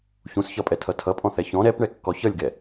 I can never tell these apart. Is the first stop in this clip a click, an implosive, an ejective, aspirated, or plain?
ejective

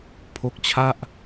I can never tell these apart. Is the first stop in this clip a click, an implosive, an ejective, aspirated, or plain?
aspirated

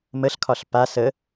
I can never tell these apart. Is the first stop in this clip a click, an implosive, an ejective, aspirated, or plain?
aspirated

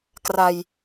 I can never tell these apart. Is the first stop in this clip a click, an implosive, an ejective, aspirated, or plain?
plain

